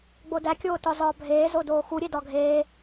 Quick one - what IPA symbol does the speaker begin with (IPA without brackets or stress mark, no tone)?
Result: ɡ͡b